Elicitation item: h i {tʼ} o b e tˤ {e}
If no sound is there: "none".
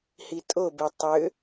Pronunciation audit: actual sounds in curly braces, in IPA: tʼ, ø

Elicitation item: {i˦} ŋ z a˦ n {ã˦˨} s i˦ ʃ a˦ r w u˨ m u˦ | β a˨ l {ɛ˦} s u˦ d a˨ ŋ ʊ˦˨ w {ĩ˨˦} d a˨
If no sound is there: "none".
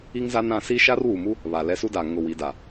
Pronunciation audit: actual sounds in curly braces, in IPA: i˦, ã˦˨, ɛ˦, i˨˦

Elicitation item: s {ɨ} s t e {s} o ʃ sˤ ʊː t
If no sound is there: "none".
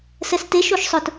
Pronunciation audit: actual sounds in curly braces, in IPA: ɛ, ʃ

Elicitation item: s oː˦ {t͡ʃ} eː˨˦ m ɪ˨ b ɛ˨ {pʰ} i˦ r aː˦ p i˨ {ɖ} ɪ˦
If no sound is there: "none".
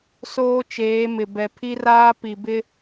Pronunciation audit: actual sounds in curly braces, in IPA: t͡ʃ, pʰ, b

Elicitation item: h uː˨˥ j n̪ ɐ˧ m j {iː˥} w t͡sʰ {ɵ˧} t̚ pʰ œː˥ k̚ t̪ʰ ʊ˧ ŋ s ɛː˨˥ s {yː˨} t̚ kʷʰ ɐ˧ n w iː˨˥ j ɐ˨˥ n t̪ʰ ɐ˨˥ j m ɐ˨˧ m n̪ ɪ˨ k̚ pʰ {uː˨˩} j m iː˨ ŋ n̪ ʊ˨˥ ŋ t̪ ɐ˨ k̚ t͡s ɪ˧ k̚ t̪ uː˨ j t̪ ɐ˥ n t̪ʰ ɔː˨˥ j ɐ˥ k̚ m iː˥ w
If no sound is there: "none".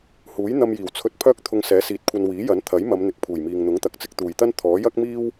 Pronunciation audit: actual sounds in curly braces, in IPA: iː˨˩, ɵ˧, iː˨, uː˨˩

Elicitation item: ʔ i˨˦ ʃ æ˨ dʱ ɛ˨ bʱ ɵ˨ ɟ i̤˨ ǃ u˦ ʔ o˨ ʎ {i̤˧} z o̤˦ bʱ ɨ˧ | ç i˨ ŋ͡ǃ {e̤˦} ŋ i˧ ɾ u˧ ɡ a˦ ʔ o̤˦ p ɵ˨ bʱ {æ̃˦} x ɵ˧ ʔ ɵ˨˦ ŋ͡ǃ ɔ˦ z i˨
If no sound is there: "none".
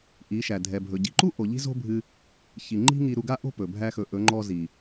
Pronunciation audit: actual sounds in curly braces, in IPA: i̤˦, i̤˦, æ˦

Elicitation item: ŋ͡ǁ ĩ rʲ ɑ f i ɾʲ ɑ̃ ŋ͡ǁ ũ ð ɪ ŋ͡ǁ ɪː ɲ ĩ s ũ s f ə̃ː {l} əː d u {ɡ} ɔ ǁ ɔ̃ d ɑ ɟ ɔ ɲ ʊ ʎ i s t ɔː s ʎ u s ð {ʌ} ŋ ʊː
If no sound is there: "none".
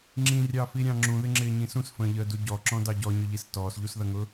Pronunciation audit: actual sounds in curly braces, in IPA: ʎ, ɟ, ʌ

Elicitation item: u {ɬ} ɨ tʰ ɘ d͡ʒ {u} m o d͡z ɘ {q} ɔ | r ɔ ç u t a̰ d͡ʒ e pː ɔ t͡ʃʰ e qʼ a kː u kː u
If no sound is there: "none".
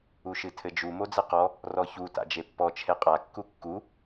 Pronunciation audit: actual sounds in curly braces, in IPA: ʃ, u, q

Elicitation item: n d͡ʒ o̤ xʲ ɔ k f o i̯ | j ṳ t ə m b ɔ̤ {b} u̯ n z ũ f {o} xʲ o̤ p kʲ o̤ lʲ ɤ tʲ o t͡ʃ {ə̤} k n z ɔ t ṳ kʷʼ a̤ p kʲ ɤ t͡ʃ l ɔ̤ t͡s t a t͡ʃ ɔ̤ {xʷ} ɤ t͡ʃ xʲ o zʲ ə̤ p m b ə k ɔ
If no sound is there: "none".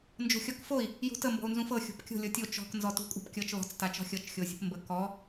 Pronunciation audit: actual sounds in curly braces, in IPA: none, ɤ, ɔ̤, xʲ

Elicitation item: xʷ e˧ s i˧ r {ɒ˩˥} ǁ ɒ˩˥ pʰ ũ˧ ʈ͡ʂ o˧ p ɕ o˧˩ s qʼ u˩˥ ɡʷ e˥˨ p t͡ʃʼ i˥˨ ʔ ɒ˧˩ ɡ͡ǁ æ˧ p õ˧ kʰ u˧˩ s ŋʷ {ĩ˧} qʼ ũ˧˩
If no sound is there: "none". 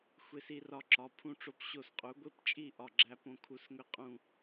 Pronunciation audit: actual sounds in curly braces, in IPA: ɒ˧, i˧

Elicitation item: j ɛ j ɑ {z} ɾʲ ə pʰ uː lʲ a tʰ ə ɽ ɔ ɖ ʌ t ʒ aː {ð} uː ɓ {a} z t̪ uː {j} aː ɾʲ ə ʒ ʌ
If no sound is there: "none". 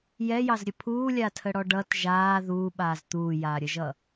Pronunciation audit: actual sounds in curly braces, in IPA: z, ð, aː, j

